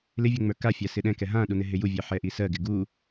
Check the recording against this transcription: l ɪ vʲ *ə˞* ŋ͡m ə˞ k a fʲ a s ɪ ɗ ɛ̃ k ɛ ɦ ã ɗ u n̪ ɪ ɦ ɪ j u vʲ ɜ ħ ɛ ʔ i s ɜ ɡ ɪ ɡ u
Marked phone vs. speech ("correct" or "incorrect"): incorrect